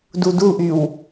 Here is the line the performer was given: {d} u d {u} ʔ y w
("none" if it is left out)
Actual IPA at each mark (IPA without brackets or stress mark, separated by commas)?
d, u